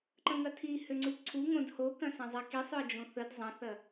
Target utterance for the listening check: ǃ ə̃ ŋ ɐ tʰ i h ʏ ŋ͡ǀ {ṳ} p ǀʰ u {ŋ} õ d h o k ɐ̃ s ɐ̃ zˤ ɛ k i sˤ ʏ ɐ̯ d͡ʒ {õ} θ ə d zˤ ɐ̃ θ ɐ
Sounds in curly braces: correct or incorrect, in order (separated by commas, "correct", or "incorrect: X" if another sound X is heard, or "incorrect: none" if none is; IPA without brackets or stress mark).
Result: incorrect: u, correct, correct